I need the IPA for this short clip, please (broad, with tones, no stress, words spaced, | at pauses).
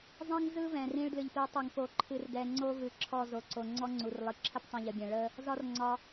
zˤĩ˦ŋzɯ˦vɛ̃˨ rĩ˧ɭdlɨ˨ʎpi˨˦tˤɨ˨ŋ po˨ǃʰɨ˨rdɛ˨ ŋ͡ǀo˦vɨ˨ǁʰɔ˦˨ zo˨ǀo˨ ŋ͡ǀɔ˦ŋ͡ǀu˨rlˠɨ˨ ǁʰə˦ptˤĩ˨ʎə˨bʲɛ̃˨ ɭə˦ | zɒ˦r ŋ͡ǀɒ˧